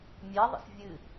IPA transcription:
mʲɛðˤə̰s vʲɨ

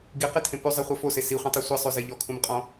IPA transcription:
ɡiqetʰẽ pʉzˤeχʷɐ fose siχʷĩtˤi sʷisˤʉze ʎɔkʰũmqʼɔ̃

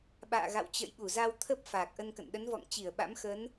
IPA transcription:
ɓa̰ː˧˨ɣa̰˧˨wt͡ɕə̰˧˨jɓu˧˩ za˧wt̪ʰə˦˥p̚ faː˨˩k̚ʔə˧nkə̰˧˨n ɗə˨˦nvɔ̰˧˨ŋt͡ɕi˧˩ə̯ ɓa̰˧˥mxə˨˦n

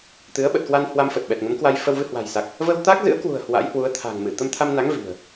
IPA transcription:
t̪ɨ˨˦ə̯ɓə˨˩t̚kwa˧n hwa˧mfə˨˩t̚ ɓɛ˨˩t̚ŋə˨˦m kwa˧jfə˧w vɨ˧hwa̤˨˩jsa˨˩k̚ | və˧wt̪a˦˥k̚zɨ̰˧˥ə̯kwṳ˨˩ə̯ hwa̰˧˥jhwu˨˦ə̯t̪ʰa̤˨˩ŋ mɨ˧˩ t̪ə˧mt̪ʰa˧mna˨˦ŋ vi̤˨˩ə̯

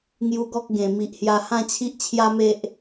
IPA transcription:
ŋju˧ɡɔ˦k̚ ɡẽ˨˩ mi˨ʔhja˧ hã˥˧t͡ɕʰi˦ʔt͡ɕʰja˦me˦ʔ

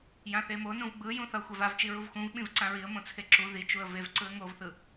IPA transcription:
jãθemo nũvɡ͡bɯ jũθʌ xʷɛvavt͡ʃi ɹuvxũv ɓĩvǀãɹiə̯ mõt͡sʰeǁu ðit͡ʃuə̯ vev ǀɯə̯ŋovθɯ

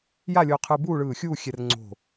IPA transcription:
ja˥˧lʲo˧qʰɯ˧ buː˥˧ɭɯː˧˩xʲuː˥˧ xʲɛ˧rŋ͡ǀo̤˧˩

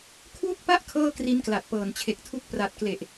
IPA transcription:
kʰwu˥˩k̚pa˥˩ʔ kʰɤː˥˩kri˦˥nkla˨˩t̚ pɤː˨˩nt͡ɕʰe˨˩k̚tʰu˦˥k̚ pra˨˩t̚kle˨˩ʔ

